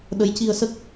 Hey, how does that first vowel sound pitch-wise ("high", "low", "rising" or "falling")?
rising